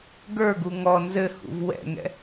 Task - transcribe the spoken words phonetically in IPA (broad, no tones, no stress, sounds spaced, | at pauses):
ɡ ə˞ ɡ u ŋ ɔ n z ɘ h ṵ v w ɛ̰ ŋ ɛ̰